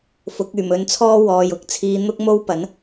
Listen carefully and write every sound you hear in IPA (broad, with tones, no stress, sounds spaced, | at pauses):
f ʊ˨˥ k̚ yː˨˩ m ɵ˨˧ n t͡sʰ ɔː˥ w ɔː˨ j ʊ˨ k̚ t͡sʰ iː˧ n̪ ʊ˥ k̚ m o˥ w p ɐ˨˥ n